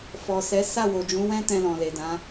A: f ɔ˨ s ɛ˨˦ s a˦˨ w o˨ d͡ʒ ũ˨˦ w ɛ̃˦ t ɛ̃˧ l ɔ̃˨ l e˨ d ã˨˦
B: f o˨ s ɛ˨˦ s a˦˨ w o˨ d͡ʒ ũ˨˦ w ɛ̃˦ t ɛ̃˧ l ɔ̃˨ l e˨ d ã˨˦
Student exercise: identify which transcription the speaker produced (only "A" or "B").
A